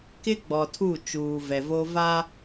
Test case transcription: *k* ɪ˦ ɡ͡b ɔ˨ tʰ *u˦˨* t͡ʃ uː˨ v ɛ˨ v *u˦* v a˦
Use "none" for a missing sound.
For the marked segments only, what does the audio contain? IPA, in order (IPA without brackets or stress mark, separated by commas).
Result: k, u˦˨, o˦